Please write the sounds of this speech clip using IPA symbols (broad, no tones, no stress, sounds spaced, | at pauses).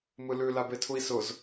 m ɯ l ʉ l a b e tʰ u i̯ s ʊ z